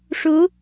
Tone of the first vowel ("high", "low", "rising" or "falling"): rising